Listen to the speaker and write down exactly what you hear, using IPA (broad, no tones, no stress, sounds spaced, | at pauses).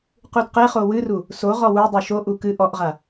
q u d q e χ o w ɨ r u | s o ʁ ɔ w u dˤ u ʃ o ʔ u k ɨ ʔ ɔ ʔ ʁ a